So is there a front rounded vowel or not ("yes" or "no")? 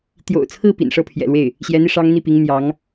no